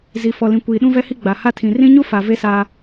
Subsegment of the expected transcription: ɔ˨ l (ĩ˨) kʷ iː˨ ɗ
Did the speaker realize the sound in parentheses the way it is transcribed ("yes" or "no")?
yes